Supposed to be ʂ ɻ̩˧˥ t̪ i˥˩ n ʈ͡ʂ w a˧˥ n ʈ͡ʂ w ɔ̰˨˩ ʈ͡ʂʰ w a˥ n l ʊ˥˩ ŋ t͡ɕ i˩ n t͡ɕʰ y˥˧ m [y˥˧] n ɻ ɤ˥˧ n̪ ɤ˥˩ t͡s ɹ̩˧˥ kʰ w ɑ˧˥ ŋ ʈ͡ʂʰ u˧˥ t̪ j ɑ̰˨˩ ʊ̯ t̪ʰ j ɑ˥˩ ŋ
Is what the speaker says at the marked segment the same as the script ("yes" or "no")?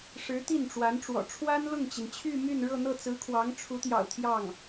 yes